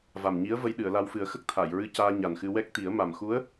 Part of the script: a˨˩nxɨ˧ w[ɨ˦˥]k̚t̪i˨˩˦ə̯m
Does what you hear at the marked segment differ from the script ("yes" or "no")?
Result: yes